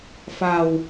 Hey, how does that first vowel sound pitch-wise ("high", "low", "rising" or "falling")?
low